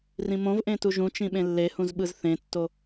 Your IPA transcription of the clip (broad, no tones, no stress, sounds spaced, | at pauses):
r ĩ m õ v ʔ ẽ t u ʒ ũ t͡ʃ ĩ ɓ ẽ lː e h ũ z ɓ ɯ z θ ẽ tː o